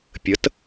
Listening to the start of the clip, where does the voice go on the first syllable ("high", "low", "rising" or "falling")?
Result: rising